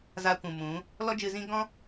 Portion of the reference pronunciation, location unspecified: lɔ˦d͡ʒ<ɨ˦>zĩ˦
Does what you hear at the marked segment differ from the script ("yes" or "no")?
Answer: yes